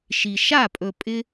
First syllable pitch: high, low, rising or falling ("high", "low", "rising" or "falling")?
low